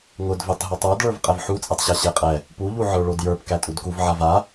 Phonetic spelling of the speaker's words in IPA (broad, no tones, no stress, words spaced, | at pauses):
ŋʊdvetˤ ɦotˤə˞dɭə˞v qʼɛvħut͡sʼɛtˤɕa ɕeqʼɛ | puʎuʕə˞ ɭodjə˞pkæ tʼudkuv ʕava